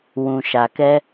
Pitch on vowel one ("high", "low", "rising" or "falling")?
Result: low